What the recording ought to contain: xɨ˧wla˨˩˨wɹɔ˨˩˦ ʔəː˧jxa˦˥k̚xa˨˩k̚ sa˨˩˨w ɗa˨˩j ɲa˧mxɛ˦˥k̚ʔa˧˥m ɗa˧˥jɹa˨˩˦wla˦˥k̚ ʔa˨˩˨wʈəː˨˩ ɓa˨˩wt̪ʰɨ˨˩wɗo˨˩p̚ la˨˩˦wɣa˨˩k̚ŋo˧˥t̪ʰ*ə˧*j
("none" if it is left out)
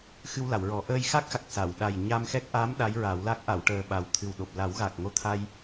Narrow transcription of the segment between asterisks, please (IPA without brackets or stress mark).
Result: a˧